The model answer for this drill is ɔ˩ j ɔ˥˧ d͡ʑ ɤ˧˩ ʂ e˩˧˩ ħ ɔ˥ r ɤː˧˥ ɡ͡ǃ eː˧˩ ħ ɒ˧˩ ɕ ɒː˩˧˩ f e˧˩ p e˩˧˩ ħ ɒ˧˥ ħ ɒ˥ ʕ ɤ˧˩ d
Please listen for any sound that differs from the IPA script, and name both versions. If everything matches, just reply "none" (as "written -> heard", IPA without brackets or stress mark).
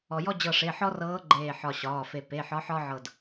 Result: none